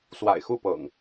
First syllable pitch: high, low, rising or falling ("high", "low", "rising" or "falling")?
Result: low